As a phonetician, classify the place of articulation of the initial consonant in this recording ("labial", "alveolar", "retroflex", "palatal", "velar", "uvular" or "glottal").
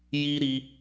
palatal